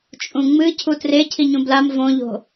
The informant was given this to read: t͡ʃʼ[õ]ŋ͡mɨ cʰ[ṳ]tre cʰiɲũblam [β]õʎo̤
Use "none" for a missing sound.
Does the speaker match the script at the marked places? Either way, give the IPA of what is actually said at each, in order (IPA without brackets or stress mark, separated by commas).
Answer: ũ, u, v